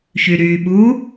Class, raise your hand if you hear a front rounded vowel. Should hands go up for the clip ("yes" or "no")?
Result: yes